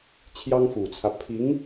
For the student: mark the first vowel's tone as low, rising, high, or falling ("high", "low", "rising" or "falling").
high